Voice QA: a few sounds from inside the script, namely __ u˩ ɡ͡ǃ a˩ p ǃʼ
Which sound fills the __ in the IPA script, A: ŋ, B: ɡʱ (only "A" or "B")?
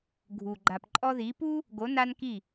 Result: B